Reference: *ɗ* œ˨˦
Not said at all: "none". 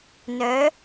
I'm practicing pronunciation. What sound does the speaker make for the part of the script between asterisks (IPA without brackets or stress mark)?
n